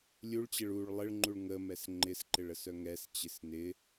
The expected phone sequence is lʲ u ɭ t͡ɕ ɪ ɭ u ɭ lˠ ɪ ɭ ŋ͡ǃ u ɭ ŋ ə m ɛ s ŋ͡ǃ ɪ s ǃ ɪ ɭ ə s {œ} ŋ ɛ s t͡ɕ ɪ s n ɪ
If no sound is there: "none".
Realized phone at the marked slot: œ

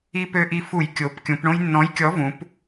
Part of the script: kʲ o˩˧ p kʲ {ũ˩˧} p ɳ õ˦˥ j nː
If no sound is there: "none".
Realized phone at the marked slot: ũ˩˧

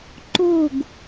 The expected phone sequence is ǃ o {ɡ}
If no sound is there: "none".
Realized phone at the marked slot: ɡ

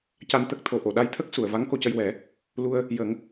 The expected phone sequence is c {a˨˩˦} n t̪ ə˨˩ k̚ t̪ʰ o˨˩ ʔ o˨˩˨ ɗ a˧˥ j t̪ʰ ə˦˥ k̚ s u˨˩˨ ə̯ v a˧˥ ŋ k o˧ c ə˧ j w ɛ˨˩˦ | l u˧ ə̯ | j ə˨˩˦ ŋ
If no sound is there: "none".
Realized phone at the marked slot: a˨˩˦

